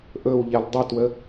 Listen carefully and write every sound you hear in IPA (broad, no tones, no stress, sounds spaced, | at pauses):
ʔ ɵ w ʎ ɛ l dˤ ə t w ə